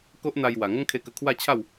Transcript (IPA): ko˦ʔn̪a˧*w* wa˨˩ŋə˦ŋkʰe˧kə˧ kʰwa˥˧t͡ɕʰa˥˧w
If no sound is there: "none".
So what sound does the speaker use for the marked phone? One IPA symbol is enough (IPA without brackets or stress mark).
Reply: j